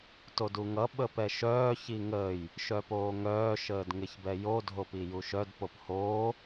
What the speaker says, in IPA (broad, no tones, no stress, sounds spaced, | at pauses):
t o d u ŋ ʌ ɓ əː p ɛ ʃ œː ç i ŋ əː j | ʃ œ p oː ŋ œː ʃ əː d ŋ ɪ ç b ɛ j o dʱ o p i j u ʃ œ d p o p h oː